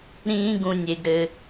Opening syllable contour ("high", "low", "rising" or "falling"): high